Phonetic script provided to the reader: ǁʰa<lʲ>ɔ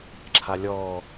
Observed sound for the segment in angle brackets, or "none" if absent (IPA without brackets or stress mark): lʲ